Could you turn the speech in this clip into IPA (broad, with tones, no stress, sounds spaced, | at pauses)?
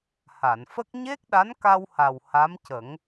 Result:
h a˨˩˨ n f ə˦˥ k̚ ɲ e˦˥ k̚ ɗ a˧˥ n k a˧ w h a˨˩ w h a˧˥ m c ə˨˩˦ ŋ